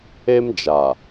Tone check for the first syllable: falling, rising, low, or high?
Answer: high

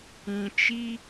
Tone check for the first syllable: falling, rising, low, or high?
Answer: low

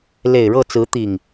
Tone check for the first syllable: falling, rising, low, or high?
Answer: low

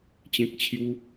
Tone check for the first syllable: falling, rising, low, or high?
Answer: high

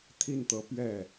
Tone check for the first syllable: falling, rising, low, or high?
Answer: falling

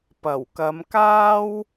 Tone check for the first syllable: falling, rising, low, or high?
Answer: low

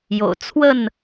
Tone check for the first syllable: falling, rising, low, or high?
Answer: low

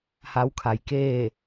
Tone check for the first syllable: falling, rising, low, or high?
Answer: rising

